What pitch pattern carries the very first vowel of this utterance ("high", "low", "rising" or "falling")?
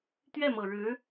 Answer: falling